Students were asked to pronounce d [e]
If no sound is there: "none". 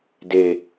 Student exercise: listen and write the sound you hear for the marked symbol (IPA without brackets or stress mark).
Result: e